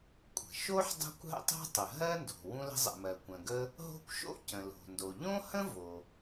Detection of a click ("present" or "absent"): absent